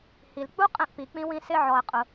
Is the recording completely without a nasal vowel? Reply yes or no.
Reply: no